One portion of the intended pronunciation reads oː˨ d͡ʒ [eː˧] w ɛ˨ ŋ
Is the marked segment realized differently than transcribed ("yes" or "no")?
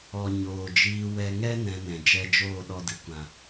yes